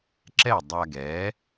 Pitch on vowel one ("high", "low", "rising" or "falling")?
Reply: falling